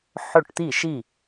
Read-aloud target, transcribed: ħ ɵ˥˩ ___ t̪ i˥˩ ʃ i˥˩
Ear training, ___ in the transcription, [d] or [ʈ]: ʈ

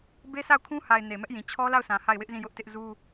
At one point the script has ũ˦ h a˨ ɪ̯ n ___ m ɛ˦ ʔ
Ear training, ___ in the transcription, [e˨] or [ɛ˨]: e˨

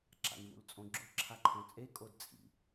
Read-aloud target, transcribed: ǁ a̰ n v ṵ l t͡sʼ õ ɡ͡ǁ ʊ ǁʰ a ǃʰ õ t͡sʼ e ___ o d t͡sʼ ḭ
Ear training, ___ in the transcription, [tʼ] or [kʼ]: kʼ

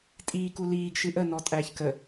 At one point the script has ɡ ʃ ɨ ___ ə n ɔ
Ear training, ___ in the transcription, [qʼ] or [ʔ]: ʔ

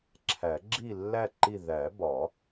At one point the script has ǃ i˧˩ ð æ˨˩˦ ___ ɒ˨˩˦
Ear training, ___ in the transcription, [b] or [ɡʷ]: b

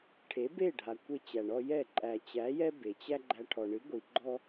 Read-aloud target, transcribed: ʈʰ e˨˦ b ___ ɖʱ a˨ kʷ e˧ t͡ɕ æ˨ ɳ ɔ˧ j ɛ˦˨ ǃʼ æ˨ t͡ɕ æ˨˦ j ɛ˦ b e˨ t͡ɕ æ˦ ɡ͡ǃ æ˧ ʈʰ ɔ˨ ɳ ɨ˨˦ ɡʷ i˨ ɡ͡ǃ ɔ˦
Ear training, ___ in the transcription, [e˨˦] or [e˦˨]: e˦˨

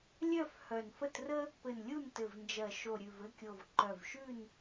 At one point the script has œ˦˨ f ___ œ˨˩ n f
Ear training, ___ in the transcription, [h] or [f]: h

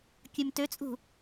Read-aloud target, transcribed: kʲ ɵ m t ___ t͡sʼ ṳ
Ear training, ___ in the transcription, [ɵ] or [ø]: ø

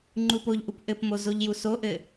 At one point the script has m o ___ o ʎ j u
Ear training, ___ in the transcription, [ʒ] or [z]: z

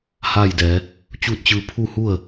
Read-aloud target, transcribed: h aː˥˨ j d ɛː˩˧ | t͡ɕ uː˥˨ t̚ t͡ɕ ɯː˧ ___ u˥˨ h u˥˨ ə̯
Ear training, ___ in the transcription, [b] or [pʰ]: pʰ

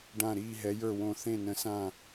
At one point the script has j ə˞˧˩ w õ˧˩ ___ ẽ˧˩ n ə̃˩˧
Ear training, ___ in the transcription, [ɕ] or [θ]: θ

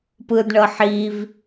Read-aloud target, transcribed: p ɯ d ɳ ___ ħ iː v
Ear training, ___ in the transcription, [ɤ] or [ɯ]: ɤ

